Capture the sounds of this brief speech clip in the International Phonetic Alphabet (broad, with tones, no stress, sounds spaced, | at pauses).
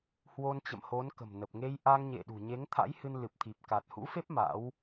h w o˧ n t͡ɕ ə̰˧˨ m h o˨˦ n k ə̤˨˩ m n ə˨˩ p̚ ŋ e˧ j ʔ a˧ ŋ ɲ ḛ˧˨ ɗ ṳ˨˩ ɲ e˨˦ ŋ t̪ʰ a̰˧˥ j h ɨ˧ n l ɨ˨˩ p̚ t̪ʰ i˨˩ p̚ k a˨˩ t̚ h ṵ˧˥ f e˦˥ p̚ m a̰˧˥ w